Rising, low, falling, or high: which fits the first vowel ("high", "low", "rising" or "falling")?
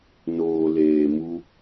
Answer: low